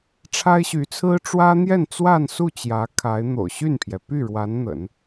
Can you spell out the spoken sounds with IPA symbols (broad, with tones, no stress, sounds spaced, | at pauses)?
ʈ͡ʂʰ a˥ ɪ̯ ɕ y˧˥ t͡sʰ ɹ̩˥ ʈ͡ʂ w ä˥ n̪ j ɛ˥˧ n t͡s w a˥˧ n s u˥˩ t͡ɕ j ä˧˥ kʰ a˧˥ ɪ̯ n̪ o̰˨˩ ʊ̯ ɕ y˥˩ n pʰ j ɛ˩ p y˥˩ ɻ w a˧˥ n n̪ ə̰˨˩˦ n